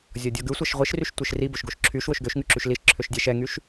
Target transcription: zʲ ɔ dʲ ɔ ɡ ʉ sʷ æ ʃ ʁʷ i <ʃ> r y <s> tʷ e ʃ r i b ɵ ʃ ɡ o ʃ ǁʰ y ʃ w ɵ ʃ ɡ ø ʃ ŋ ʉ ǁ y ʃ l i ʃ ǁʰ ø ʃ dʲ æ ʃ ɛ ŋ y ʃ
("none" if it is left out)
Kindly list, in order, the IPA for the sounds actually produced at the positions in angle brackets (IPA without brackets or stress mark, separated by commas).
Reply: ʃ, ʃ